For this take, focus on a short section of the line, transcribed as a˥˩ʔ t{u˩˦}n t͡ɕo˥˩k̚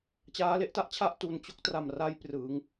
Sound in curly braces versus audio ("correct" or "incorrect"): incorrect